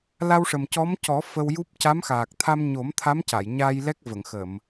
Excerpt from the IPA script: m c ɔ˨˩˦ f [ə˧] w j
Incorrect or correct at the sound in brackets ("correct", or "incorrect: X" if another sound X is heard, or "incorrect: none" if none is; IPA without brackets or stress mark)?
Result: correct